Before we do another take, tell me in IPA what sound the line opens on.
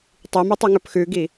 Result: tˤ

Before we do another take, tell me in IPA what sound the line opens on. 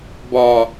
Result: b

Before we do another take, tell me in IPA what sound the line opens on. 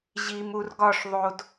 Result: ʑ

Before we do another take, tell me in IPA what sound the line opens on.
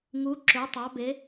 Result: ŋ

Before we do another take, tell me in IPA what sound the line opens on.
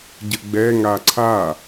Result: ɟ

